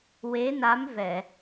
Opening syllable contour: rising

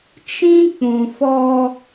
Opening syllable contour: high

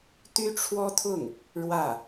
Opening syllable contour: high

